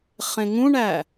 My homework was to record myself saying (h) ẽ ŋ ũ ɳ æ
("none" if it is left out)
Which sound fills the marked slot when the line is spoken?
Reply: χ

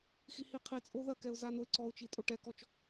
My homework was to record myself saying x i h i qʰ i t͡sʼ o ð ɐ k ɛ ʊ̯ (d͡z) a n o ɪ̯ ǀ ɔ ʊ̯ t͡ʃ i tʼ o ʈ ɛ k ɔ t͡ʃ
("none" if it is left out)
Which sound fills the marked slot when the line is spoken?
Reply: z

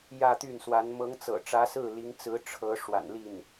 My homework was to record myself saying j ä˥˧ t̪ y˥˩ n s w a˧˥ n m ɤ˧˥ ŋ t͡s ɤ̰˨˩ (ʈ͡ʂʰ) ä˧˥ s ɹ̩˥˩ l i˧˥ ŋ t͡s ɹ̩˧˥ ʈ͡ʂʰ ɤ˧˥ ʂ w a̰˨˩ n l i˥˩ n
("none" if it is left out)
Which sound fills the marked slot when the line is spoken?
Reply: ʈ͡ʂ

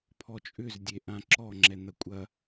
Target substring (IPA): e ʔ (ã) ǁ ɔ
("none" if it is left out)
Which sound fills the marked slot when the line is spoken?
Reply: ã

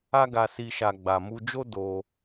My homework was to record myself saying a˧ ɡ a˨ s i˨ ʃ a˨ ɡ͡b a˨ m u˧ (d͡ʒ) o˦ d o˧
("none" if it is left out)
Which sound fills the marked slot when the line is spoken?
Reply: d͡ʒ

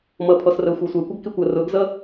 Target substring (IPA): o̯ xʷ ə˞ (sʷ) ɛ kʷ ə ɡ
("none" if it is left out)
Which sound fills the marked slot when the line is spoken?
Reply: sʷ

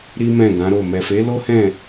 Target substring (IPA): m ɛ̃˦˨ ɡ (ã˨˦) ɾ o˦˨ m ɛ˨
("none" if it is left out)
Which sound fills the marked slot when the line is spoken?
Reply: ã˨˦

